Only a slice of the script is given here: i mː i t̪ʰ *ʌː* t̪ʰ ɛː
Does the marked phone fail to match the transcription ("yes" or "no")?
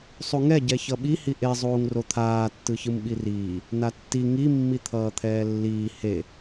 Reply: no